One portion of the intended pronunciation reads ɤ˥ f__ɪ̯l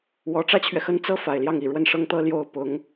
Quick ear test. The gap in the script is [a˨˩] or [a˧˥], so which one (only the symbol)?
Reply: a˨˩